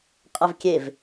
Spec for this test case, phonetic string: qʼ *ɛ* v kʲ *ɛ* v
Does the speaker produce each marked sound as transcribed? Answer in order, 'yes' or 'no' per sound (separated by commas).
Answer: yes, no